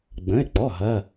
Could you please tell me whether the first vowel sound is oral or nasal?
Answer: nasal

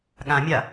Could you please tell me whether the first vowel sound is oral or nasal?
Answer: nasal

